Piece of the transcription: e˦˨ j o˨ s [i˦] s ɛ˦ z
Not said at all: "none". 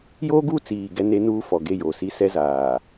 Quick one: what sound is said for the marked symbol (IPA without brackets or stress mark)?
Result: i˦